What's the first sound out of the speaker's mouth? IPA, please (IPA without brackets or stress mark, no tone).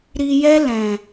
ɾ